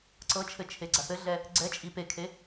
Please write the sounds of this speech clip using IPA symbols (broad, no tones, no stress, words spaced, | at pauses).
ǀɤt͡ʃʰɘ t͡ʃʰeɡ͡ǀaθɘɮɛ | ɡ͡ǀɛt͡ʃʼi pekʰe